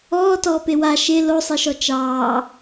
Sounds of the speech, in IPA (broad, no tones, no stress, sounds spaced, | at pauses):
ɔː t ɔː p e w a ʃ e l o sˤ e ʃ ɔ t͡ʃ ɑː